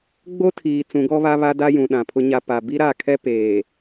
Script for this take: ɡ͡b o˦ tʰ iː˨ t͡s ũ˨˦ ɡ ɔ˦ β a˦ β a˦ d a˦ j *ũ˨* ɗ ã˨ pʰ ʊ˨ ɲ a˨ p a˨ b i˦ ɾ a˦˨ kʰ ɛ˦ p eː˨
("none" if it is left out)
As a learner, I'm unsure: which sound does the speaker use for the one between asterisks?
ũ˨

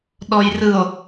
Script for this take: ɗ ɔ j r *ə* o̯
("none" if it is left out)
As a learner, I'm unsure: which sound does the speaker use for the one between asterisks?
ɯ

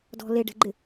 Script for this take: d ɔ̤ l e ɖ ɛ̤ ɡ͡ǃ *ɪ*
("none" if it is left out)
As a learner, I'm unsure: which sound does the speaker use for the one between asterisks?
ɪ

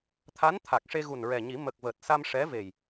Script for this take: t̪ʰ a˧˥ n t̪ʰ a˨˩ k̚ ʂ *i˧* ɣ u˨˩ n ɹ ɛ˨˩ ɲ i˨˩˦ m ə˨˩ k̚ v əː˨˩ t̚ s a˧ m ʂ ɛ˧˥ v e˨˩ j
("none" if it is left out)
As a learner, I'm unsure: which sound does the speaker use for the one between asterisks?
e˧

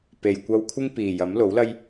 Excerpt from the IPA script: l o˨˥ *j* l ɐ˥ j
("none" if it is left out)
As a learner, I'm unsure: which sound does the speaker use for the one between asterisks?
w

